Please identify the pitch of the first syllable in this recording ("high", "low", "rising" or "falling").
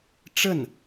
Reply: falling